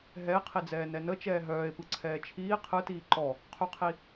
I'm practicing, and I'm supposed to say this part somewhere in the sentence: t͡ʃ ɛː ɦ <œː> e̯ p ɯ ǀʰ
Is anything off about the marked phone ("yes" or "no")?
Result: no